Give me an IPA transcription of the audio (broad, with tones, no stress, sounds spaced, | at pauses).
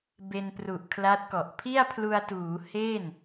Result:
b e˧ n p r u˨˩ ʔ kʰ l a˦˥ t̚ k ɔ˨˩ ʔ pʰ i˥˩ a̯ pʰ l u˧ a̯ t uː˩˦ h e˥˩ n